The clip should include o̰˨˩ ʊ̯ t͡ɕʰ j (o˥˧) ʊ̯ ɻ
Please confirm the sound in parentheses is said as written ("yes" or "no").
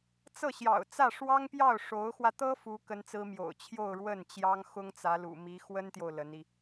yes